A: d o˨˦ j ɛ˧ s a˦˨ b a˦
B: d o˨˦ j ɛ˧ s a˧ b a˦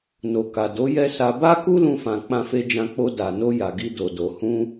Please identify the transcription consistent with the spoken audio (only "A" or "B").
B